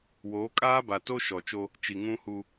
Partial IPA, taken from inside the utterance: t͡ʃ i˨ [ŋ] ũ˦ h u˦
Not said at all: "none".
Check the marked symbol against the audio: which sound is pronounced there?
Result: ŋ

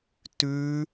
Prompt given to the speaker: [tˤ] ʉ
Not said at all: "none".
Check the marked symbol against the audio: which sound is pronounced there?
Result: t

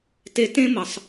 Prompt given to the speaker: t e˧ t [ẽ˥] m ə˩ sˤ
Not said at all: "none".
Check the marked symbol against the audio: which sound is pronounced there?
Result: ẽ˥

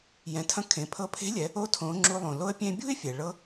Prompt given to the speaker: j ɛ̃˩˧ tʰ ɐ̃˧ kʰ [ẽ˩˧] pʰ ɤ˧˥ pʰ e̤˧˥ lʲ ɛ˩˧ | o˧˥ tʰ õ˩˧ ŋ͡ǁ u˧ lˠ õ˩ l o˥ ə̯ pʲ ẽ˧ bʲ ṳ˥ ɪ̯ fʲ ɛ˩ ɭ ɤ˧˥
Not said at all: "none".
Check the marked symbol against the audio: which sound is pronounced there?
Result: ẽ˩˧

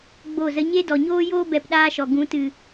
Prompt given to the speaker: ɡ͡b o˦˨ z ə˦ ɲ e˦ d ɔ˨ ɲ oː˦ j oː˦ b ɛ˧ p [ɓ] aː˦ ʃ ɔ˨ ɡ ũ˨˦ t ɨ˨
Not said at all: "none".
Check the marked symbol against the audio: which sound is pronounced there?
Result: ɗ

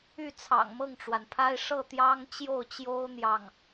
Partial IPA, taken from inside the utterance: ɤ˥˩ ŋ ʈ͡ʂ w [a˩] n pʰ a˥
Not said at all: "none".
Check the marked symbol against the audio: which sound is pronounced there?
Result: a˩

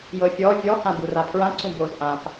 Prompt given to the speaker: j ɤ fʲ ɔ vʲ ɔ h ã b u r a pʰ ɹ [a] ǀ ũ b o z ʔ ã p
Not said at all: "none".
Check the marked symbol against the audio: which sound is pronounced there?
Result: ã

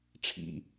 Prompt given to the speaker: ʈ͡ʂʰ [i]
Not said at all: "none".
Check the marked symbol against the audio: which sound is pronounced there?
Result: ḭ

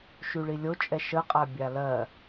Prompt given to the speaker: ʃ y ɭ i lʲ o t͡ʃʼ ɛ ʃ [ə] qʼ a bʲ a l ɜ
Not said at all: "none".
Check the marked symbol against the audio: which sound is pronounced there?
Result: ə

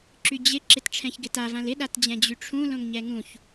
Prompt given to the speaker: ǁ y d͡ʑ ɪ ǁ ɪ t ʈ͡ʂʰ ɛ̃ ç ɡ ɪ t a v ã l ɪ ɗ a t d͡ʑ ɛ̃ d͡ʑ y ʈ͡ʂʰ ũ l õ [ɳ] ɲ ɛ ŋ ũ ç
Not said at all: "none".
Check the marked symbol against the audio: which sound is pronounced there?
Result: ŋ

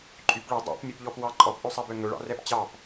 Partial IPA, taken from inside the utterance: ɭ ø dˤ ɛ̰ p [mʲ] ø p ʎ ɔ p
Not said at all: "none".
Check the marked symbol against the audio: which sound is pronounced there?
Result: mʲ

